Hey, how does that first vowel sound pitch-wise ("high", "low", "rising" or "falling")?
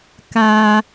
high